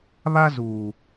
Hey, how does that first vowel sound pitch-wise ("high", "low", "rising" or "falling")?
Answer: high